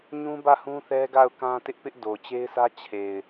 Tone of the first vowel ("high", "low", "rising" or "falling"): high